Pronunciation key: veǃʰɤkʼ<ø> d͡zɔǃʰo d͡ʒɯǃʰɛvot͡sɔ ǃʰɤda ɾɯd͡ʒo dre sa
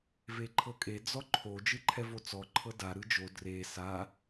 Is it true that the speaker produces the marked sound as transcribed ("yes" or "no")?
no